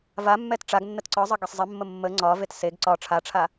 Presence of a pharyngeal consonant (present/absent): absent